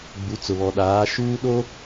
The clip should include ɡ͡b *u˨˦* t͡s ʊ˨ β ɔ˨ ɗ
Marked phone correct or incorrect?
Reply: correct